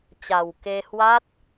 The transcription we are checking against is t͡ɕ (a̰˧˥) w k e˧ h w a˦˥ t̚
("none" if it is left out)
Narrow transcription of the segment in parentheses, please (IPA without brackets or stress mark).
a˨˩